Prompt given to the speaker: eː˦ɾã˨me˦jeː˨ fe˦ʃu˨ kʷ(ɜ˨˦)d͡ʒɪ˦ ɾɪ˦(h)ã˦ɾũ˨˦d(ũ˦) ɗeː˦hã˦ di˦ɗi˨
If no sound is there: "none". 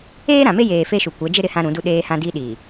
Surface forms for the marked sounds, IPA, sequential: ɛ˨˦, h, u˦

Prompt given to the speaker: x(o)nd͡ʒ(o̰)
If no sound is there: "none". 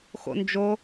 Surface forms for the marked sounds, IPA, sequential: o̰, o

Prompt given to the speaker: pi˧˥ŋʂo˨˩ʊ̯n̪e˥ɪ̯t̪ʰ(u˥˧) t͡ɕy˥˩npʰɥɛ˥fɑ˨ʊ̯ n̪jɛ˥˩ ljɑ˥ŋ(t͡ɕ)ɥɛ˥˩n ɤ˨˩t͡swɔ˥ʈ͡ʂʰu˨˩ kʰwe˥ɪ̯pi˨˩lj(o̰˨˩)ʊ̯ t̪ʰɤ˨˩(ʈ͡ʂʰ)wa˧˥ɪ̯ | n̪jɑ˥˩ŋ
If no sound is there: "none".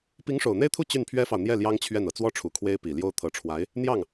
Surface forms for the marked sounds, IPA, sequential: u˥˧, t͡ɕʰ, o˥, ʈ͡ʂʰ

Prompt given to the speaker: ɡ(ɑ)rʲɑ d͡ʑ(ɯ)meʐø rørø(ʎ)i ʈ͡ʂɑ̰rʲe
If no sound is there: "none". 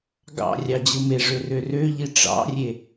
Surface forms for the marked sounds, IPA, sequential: ɑ̰, ɯ, ʎ

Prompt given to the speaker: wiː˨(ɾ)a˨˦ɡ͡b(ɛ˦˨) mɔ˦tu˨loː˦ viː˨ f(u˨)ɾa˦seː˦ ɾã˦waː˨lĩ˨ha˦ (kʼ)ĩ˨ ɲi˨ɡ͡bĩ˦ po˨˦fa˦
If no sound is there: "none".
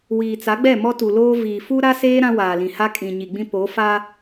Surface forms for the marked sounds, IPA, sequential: t͡s, ɛ˦˨, u˦, kʼ

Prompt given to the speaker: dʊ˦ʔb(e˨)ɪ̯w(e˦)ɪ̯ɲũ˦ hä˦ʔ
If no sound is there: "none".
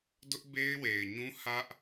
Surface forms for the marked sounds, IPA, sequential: e˦, e˨

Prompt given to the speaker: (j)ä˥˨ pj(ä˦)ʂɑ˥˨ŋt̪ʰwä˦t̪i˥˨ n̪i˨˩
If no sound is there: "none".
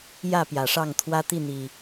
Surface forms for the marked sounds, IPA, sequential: j, ä˨˩

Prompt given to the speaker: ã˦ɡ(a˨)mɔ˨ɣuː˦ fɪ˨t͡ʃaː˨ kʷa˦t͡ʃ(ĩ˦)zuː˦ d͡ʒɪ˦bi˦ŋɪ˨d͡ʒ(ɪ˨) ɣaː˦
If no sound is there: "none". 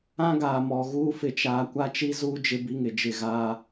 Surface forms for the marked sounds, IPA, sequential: aː˨, i˦, ɪ˦˨

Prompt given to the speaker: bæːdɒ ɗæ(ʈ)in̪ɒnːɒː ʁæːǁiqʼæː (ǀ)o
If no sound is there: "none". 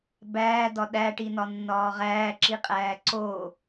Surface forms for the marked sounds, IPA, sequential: ʈ, ǀ

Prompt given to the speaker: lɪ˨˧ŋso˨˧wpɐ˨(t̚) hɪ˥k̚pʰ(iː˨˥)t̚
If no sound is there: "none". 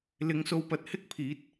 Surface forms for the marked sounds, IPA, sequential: t̚, iː˨˥

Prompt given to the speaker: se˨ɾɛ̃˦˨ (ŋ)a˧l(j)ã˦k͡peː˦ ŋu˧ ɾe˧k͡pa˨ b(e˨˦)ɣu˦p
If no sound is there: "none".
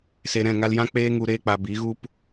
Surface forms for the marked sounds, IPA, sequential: ŋ, j, i˨˦

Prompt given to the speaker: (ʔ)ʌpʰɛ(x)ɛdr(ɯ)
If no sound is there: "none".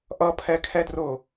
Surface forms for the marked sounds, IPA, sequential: ʔ, kʰ, ʊ

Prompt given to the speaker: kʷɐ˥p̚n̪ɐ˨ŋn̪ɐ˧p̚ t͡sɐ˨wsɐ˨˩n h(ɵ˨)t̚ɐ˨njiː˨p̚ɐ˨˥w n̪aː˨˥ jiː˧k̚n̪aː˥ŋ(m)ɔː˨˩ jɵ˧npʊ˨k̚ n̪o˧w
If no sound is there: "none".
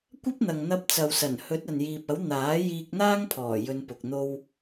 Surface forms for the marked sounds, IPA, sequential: ɵ˨˥, pʰ

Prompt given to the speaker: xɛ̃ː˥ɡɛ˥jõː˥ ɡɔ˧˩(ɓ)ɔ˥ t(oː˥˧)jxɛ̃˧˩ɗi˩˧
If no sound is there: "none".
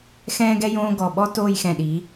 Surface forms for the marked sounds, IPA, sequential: ɓ, oː˥˧

